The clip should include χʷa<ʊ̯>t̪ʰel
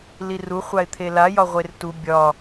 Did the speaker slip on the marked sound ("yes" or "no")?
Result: yes